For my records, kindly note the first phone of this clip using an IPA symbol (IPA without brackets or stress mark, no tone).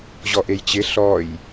ʑ